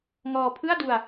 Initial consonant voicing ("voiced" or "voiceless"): voiced